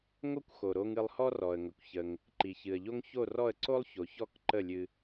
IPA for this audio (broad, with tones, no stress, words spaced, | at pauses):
ŋo˥kʷxo˩ɾo˧ŋ ɨ˧lˠhɔ˥rɔ˩ə̯ŋə˩kʷ çə˩ŋ | ǃi˩çɨ˩ə̯ʎo˥ŋ ço˥˩rɔ˥˩ə̯ ǀo˥lˠço˩ çɔ˥˩k ǃə˥˩lʲɨ˧